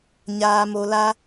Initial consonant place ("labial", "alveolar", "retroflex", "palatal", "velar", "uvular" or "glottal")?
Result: palatal